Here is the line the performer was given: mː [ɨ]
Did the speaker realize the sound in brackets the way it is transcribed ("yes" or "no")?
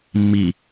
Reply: no